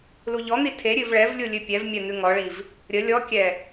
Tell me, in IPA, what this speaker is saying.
l u ʎ ɔ n̪ i tʰ e ɾʲ ʉ v ɭ ɛ v lʲ u lʲ ʉ pʲ ɛ v mʲ ɛ n̪ ʉ ŋ ɔ ɭ i v | ɾʲ ə lʲ ɔ kʲ ɛ

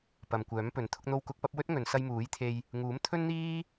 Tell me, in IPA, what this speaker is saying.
p ɐ˨ m kʷ œː˨˥ m p ɵ˨˥ n t̪ʰ ʊ˧ k̚ n̪ o˧ w k ʊ˨˥ k̚ p ɐ˨˥ p̚ w ɵ˥ t̚ ŋ ɵ˨˧ n s ɐ˧ j m uː˨˥ j t̪ʰ e˧ j | ŋ uː˨˥ m t̪ʰ ɵ˥ n n̪ iː˥

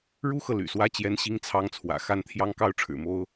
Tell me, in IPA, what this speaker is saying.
ɻ u˥ x ɤ˨ l y̰˨˩ s w ä˥ t͡ɕ j ɛ˥ n ɕ i˥ ŋ t͡sʰ ɑ˥ ŋ t͡sʰ w ä̰˨˩ x a˥˩ n t̪ʰ j ɑ˥ ŋ k ɑ˥ ʊ̯ ʈ͡ʂʰ ɻ̩˨˩ m o˥ ʊ̯

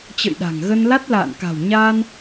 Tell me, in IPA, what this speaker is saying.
t͡ɕ ə̰˧˨ j ɗ a̤˨˩ ŋ ɣ ə˧ n l a˦˥ t̚ l a̰ː˧˨ n k a̤˨˩ w ɲ aː˧ n

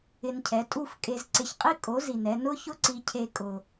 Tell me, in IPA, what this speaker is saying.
ɪ˧ n cʰ ɛ˩˥ tʼ u˥˩ f kʼ e˧ z ǀ ɪ˧ ç qʼ i˥ kʼ o˩˥ z i˩ n ɛ˧ n ʊ˥ ç ʊ˥ ǀ i˧ cʰ e˧ kʼ ʊ˩

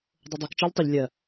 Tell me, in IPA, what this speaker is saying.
dˤ o dˤ o k t͡ʃ ɜ ʎ tˤ ɵ ʎ lʲ ɜ

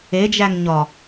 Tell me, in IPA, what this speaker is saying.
e d͡ʒ æ ŋ ɲ ɒ

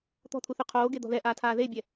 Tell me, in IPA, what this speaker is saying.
t̪ ɔ̤ t̪ʰ u θ y qʰ oː ɡ e d̪ ɔ̤ ð ɛ ʔ aː tʰ aː ð e bʲ ɛ

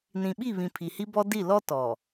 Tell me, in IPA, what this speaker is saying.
n ĩ˨ ɓ i˦˨ β ĩ˨ pʰ i˨ h i˦ b ɔ˦ d i˦˨ l ɔ˦ t ɔ˨

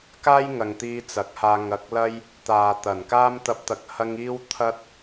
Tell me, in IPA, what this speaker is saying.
k aː˥ j ŋ ɐ˨ ŋ t̪ iː˧ t͡s ɐ˨˥ k̚ h aː˧ ŋ ɐ˧ k̚ l ɐ˥ j | t̪ aː˨ t̪ ɐ˨˩ n k aː˥ m t̪ ɐ˧ p̚ t̪ ɐ˨ k̚ h ɐ˧ ŋ iː˥ w t̪ʰ ɐ˥ t̚

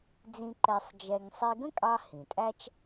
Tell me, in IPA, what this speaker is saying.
d͡z ĩ˧ ǃ ɛ˧ sˤ d͡ʒ ɛ˧ ŋ sˤ i˧ ɡ ə̃˥ kʼ ɑ˧ h ĩ˩ tʼ æ˥ t͡ʃ

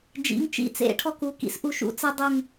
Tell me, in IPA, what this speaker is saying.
d͡ʒ ḭ˩˧˩ ŋ t͡ʃ ḭ˧˩ t͡s ḛ˨˦ ʈʰ ɔ˦ k u˩˧˩ k ḭ˦ s ʔ u˧˩ ʃ ṵ˨˦ t͡s ə˦ dˤ u˧˩ ŋ

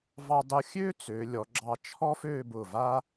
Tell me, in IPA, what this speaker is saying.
v ɑ˧ dˤ ʊ˧ xʲ ø˥ t͡s ø˩˧ lʲ ɔ˩˧ ɡ͡ǁ ɑ˧ t͡ʃʰ ɔ˥ f ø˥˧ b ʊ˧˩ v a˥

